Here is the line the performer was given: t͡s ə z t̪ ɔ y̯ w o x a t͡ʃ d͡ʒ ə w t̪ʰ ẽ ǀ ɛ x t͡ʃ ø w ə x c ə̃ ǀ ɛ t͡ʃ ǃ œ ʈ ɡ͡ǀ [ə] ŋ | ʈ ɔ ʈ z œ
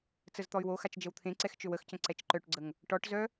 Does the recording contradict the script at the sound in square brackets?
no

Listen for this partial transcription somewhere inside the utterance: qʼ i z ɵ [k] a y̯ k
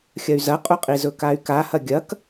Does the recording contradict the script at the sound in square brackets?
no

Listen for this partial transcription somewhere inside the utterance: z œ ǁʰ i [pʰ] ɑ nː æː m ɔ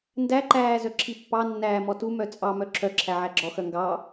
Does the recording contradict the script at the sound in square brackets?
yes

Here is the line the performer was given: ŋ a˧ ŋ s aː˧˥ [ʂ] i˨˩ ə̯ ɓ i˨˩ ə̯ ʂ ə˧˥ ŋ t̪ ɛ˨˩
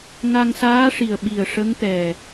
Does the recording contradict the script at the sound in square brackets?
no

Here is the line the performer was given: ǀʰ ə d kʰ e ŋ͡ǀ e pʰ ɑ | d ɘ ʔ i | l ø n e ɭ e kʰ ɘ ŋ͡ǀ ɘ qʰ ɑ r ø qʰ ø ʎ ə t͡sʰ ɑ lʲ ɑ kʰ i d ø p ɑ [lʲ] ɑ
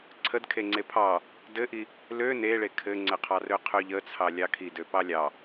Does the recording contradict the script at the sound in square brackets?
no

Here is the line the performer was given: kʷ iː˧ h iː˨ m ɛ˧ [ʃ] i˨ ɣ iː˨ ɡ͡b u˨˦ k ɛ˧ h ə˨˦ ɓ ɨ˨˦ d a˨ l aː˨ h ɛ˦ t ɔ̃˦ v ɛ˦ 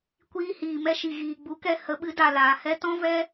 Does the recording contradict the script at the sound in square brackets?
no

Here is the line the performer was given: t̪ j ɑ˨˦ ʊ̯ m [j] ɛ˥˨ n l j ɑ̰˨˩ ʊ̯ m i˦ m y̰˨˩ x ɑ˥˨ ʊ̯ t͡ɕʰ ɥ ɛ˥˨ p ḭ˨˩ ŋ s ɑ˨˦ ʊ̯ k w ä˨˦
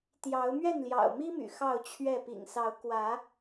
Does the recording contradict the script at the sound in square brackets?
yes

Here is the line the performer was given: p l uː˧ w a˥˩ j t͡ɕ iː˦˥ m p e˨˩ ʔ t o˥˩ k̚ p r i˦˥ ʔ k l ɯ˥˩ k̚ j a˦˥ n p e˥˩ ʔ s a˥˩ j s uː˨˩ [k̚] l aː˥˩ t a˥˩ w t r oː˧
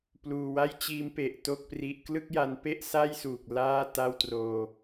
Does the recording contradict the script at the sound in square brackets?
no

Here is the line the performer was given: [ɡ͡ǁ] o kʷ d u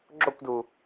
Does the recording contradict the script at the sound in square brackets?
no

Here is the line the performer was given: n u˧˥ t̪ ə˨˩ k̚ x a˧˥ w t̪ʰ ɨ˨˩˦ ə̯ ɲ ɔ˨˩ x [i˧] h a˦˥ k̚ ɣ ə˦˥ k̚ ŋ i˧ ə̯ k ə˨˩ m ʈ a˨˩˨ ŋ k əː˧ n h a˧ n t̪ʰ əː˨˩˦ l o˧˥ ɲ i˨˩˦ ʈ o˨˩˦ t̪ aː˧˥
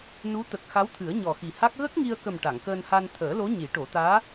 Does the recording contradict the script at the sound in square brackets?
yes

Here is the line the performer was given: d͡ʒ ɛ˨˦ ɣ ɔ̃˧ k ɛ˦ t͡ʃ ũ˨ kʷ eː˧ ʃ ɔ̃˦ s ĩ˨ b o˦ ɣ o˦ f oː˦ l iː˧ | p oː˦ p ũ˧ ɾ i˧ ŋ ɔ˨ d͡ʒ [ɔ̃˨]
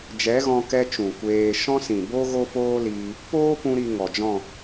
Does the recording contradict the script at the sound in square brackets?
yes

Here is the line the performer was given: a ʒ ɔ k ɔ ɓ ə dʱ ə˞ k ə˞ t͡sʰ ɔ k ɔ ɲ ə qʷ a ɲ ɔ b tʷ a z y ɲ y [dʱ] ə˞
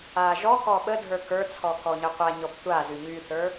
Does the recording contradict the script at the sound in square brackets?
yes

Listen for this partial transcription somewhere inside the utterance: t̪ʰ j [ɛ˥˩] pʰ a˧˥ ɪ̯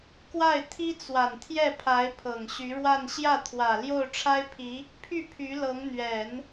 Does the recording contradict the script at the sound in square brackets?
no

